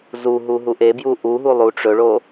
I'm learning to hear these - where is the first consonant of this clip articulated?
tongue tip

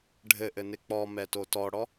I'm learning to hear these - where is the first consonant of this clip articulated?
retroflex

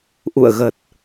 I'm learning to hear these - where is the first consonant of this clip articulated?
throat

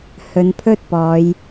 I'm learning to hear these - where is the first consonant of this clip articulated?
throat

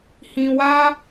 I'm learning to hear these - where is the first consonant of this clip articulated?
throat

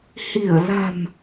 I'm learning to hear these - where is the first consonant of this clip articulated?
throat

